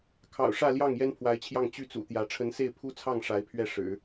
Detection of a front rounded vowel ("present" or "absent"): present